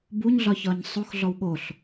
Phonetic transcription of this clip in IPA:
b u ɲ ɮ ɒ ç ɒ ɲ sˤ o x ɮ ɔ w ɠ o ɬ

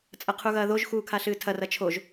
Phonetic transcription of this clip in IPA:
t͡sʼ ɐ qʰ u ɣ ɐː ð o ʒ x uː kʰ a ɬ ɨː tʰ ɐ r ɐ t͡ʃʰ o ʒ

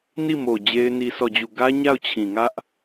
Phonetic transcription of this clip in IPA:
n i˦˨ m o˨ d͡ʑ e˦ ɪ̯ n i˦ sʰ ɔ˦˨ d͡ʑ u˦˨ ɡ ä˦ ɲ a˦˨ ʊ̯ t͡ɕʰ ĩ˨ ŋ ä˦ ʔ

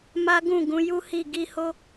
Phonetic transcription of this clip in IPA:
m a˦ ɡ ũ˦˨ ɡ ũ˨˦ j u˦ h i˦˨ ɡ i˧ h o˦

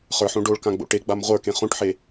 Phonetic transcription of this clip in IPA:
χ ə˞ ħ õ ɖ o ɭ k ã ɡ͡b o̰ ʈ e ɡ͡b a m ʁʷ ə˞ k ẽ χ õ ʈ ħ e

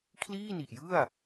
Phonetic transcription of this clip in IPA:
kʰ l iː˥˩ n i˨˩ ʔ j ɯ˥˩ a̯

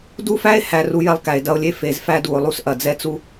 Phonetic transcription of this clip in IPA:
d u˦ f æ˦ e̯ h æ˨ r u˦ j ɛ˦ lˠ k æ˨ e̯ d ɐ˦ o̯ lʲ e˦ f e˨ z f æ˦ d u˨ o̯ lˠ u˦ s ʔ ɐ˨ d͡z ɛ˦ t͡s u˦

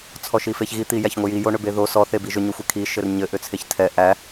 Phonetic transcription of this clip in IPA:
t͡sʰ ɔ ʃ i f e ç ɣ i t̪ i j æ ç ŋʷ ɘ j i j o ɳ ʏ b e ð o s ɔ θ e b i ʒ ʏ ɲ o xʷ e kʰ i ʃ ɘ r ɲ ɘ ʔ ʏ t͡sʰ e ç tʰ ɛ ʔ æ

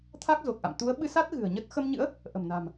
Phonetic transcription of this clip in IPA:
t̪ʰ a˦˥ k̚ z o˨˩ k̚ ʔ a̰˧˨ m t̪ u˨˦ ə̯ ɓ ɨ˧ s a˦˥ t̚ ɣ ɨ̤˨˩ ə̯ ɲ ə˦˥ t̚ x ə˧ m ɲ ɨ̰˧˥ ə̯ | ʔ ə̤˨˩ m n a̤˨˩ m

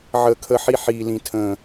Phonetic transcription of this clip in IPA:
ʕ əː˨ kʰ ə˨ ħ i˦ ħ iː˨ l ĩ˨ tʰ ə̃ː˨

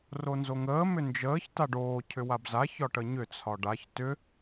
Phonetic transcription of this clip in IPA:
r o n z o ŋ əː m ʏ n d͡ʒ əː ç t a ɖ oː cʰ ʏ w a b z a ç ɒ ʈ ə ɲ ʏ t͡sʰ ɒ ɖ a ç t ʏ

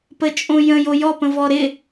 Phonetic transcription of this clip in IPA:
p ə t͡ʃʼ õ j ə̃ j o j ɔ p ə̃ v ɔ ɾ ɪ

